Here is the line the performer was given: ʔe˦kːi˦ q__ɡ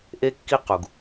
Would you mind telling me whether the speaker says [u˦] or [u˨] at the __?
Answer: u˨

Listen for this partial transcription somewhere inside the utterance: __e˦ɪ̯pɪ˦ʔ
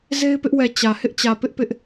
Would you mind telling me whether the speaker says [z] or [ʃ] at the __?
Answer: z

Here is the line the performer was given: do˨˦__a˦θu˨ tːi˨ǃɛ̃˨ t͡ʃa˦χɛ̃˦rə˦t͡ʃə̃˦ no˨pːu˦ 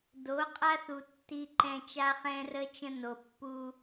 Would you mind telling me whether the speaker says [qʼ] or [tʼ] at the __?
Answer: qʼ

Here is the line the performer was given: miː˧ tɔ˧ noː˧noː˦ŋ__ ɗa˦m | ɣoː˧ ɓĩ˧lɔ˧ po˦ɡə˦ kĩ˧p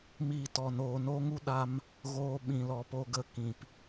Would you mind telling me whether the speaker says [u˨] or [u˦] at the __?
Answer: u˦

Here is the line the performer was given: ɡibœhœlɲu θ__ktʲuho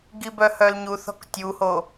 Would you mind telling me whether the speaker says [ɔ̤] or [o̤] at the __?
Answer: ɔ̤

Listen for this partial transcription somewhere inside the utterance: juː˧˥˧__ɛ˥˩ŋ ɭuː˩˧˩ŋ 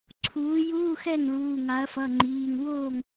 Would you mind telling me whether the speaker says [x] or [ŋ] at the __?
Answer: x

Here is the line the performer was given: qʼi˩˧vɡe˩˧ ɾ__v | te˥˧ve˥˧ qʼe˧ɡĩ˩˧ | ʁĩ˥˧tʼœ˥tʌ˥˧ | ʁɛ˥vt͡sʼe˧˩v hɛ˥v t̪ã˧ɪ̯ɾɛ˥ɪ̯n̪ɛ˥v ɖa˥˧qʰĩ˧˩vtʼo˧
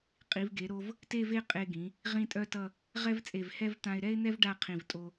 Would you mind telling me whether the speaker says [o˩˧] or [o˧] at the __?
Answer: o˧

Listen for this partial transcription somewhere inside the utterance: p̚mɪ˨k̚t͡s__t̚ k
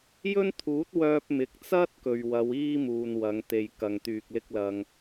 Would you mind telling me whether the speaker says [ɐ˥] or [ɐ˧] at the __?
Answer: ɐ˥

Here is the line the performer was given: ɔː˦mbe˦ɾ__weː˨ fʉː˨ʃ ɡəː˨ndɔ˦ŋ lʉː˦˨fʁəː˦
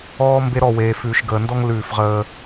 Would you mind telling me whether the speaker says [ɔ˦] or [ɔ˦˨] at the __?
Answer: ɔ˦˨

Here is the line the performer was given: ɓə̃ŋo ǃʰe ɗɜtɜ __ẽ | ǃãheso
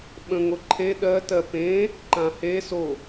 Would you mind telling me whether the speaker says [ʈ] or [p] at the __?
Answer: p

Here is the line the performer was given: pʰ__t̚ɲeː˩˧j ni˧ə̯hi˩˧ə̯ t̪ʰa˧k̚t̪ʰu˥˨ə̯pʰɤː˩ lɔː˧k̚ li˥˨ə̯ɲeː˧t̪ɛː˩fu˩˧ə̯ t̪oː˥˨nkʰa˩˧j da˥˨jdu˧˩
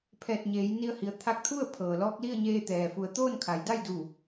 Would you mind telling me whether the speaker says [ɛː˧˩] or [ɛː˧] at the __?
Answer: ɛː˧˩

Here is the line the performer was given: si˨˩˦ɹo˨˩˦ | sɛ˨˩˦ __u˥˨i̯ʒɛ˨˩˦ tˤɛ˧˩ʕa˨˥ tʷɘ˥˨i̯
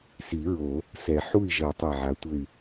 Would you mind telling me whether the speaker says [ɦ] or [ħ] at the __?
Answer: ħ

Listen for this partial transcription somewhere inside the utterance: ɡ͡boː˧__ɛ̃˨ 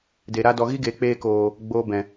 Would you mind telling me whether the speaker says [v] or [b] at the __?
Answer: b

